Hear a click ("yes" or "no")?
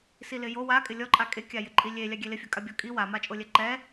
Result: yes